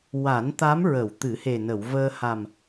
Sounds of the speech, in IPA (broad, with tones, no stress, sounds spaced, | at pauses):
w a˨˩˦ n t̪ a˧˥ m ɹ ə˨˩˨ w t̪ ɨ˨˩˦ h e˨˩ n ə˨˩˨ w v əː˧ h a˨˩ m